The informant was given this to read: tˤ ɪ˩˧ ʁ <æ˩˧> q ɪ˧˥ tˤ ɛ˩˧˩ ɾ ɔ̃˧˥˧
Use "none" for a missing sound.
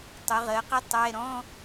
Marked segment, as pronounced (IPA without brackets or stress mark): ɜ˩˧